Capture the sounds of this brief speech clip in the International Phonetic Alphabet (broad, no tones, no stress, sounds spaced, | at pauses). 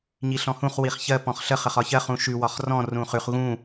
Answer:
ɲ i ɬ ɔ̃ h ũ χ w i χ ç ɜ p ɔ̃ χ ɬ ə χ ə χ ɒ ç ɜ χ ũ ʃ ʉ w ɒ χ r ɔ̃ r ũ χ ʉ χ ɣ ũ